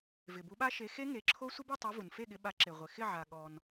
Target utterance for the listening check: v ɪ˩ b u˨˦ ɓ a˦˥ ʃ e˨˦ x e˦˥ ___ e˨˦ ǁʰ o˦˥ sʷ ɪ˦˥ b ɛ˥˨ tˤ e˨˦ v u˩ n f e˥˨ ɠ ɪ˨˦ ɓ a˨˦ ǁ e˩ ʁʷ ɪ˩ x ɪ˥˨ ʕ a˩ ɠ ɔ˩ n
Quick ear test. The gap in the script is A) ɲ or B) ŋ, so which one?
B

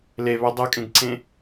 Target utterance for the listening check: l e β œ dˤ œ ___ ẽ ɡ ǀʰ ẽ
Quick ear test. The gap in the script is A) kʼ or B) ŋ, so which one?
A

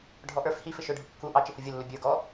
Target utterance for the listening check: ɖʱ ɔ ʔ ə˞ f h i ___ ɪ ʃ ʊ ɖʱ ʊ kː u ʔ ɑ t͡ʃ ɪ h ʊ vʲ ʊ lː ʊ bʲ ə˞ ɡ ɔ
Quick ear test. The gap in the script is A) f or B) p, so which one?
A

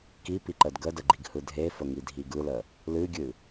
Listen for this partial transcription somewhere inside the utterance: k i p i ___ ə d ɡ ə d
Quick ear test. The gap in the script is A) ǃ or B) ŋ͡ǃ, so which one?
A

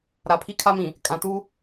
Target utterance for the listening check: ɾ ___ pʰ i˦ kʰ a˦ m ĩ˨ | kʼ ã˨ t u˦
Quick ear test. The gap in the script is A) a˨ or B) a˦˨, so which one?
A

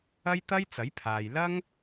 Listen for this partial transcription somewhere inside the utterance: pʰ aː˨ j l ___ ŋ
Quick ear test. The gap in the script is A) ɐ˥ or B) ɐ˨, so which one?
A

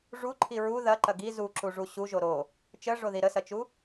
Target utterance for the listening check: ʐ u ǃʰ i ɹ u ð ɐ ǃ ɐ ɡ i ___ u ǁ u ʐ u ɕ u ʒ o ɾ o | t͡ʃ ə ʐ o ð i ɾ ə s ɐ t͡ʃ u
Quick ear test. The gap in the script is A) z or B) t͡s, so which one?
A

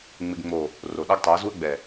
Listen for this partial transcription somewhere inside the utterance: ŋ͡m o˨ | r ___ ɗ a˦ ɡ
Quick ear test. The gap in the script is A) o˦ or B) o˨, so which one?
B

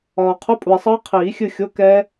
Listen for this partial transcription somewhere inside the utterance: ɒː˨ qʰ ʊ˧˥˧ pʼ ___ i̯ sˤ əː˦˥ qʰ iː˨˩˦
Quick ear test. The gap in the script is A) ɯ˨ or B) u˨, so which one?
B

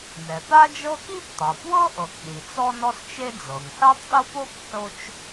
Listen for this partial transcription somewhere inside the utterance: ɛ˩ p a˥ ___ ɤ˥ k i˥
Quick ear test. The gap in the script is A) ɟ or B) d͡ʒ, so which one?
B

